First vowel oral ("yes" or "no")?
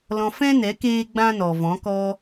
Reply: no